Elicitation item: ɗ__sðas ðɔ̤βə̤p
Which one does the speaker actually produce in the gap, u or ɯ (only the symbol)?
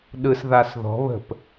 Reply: ɯ